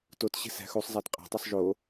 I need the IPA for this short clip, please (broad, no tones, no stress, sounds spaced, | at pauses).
t o t ɕ e̤ s æ̤ x u sˤ zˤ æ t qʼ ɑ̤ tˤ y sˤ ʒ oː